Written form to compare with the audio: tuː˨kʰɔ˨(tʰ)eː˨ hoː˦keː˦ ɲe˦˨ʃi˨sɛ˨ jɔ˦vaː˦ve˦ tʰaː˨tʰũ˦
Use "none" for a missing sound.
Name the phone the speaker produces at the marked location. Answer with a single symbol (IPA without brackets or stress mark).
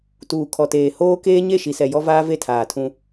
t